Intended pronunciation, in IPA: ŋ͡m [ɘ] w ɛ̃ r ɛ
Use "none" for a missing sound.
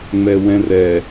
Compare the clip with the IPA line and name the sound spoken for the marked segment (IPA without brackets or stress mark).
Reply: ɛ